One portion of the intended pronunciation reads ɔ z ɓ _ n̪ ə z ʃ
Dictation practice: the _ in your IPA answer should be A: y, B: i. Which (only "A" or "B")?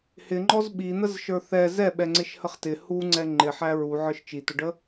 B